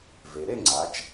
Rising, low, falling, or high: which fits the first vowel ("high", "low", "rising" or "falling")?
low